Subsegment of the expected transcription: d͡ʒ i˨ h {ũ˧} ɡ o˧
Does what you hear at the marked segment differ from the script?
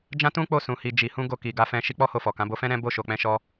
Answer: no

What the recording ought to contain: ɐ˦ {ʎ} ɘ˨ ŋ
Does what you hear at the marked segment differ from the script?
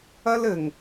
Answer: yes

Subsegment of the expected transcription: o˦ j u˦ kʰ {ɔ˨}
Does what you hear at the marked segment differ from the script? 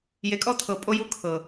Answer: yes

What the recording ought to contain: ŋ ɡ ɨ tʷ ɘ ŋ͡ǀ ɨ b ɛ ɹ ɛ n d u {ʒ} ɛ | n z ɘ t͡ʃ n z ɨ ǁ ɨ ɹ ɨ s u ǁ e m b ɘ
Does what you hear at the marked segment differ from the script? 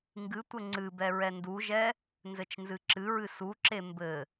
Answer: no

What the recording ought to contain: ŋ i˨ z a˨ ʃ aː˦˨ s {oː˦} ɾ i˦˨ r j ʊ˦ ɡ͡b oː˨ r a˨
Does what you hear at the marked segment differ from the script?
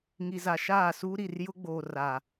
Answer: yes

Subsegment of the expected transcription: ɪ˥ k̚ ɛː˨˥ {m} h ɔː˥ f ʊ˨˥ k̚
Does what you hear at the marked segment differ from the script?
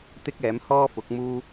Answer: no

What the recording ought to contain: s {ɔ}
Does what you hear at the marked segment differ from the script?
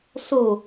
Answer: yes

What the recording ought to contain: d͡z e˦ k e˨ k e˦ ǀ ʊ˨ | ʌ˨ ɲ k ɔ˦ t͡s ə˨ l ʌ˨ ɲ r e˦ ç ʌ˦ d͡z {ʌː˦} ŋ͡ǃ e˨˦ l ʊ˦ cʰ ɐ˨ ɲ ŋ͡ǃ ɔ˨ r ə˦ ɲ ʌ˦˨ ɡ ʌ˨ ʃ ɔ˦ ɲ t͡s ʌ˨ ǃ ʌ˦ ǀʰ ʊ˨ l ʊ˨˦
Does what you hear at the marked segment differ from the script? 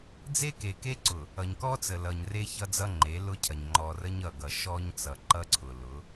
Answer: yes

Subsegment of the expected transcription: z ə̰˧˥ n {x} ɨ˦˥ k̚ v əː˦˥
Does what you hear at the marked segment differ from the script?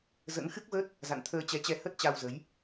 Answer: no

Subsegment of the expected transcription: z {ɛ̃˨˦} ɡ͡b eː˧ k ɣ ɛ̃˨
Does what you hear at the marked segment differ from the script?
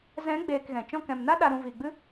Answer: no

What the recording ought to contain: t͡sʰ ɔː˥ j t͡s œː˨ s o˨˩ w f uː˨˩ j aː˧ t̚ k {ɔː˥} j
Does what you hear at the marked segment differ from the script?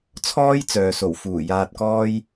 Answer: no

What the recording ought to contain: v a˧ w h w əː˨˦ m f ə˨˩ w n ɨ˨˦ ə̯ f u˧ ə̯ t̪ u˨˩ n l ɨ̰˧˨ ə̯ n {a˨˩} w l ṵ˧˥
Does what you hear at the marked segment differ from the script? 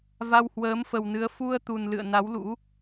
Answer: yes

